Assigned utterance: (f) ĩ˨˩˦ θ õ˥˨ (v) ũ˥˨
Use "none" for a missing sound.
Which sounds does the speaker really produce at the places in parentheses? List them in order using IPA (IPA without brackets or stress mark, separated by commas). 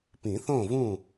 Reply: p, v